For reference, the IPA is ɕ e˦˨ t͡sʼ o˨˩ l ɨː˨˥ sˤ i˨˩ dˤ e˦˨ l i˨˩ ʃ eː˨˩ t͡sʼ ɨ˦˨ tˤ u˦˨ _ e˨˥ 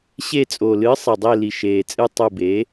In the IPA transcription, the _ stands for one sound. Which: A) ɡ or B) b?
B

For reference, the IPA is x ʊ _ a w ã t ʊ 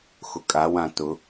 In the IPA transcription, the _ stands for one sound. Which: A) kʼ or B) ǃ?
A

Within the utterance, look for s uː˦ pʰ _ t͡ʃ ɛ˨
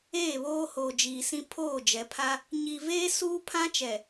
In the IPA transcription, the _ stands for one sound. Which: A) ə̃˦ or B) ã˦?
B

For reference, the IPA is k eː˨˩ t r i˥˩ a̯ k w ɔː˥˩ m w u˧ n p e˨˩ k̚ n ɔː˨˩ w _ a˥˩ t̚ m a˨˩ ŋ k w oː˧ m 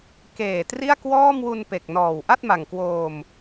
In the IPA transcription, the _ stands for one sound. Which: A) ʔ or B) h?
A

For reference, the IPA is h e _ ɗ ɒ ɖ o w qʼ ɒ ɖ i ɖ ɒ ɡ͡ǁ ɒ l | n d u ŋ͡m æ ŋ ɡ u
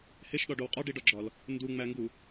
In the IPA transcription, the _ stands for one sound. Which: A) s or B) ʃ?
B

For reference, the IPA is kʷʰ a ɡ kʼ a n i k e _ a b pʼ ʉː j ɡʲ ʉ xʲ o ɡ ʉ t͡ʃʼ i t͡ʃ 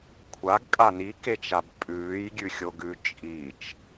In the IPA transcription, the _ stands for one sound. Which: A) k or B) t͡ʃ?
B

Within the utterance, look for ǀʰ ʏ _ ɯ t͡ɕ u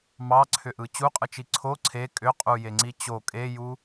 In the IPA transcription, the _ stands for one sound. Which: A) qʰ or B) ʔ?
B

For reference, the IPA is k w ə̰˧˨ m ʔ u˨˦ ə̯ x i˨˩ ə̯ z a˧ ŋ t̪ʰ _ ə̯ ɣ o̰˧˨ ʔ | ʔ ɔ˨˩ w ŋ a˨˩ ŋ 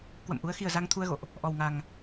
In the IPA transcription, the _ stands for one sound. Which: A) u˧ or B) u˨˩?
A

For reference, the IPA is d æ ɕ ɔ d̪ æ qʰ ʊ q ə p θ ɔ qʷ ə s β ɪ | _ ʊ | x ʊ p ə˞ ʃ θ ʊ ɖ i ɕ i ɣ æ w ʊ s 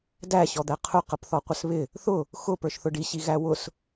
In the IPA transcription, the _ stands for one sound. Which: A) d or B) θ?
B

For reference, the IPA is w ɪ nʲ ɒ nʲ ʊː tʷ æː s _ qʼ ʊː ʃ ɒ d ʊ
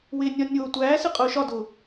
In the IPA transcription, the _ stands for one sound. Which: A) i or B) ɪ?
B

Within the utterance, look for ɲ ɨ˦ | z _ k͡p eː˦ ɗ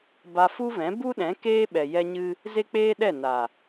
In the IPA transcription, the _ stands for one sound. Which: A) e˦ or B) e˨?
A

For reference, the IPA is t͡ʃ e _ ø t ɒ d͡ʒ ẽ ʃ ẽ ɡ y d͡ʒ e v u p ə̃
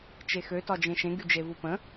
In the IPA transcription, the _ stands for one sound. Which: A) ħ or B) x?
B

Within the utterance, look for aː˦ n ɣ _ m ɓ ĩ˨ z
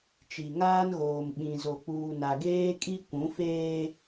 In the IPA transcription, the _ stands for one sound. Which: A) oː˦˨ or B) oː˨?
B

